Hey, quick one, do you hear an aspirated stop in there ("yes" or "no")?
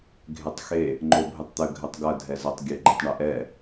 no